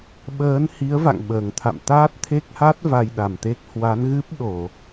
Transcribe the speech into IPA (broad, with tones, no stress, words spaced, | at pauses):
ɓəː˨˦nhi˨˦ə̯ va̰˧˨ŋɓəː˨˩ŋt̪ʰa̰˧˨m t̪aː˦˥t̚t̪ʰe˦˥k̚ha˦˥t̚ va˧jɗa˨˩mt̪e˦˥k̚ hwa˨˦n ɣɨ˦˥p̚ɗo˧˩˨